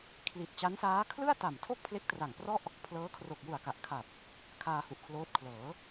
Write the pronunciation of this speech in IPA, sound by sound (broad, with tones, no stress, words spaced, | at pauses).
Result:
kʰli˨˩t̚t͡ɕa˦˥nsaː˦˥ kʰlɯ˥˩a̯ta˨˩mtʰo˥˩k̚ pʰle˦˥k̚tra˨˩ŋprɔ˥˩ʔ | pʰlɤː˦˥ kʰro˨˩k̚ju˨˩a̯ka˨˩ʔkʰa˨˩p̚ | kʰaː˧hu˨˩ʔkʰloː˦˥t̚ kʰlɤː˩˦